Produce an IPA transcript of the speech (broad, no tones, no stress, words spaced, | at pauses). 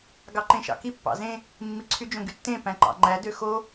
ɡɑǃẽʃɑ̰ki pːɑ̰zẽ | mːiǀʰyd͡ʒõ ɡytːẽpæ̃ ǃɑ̰ŋ͡ǃæ døxo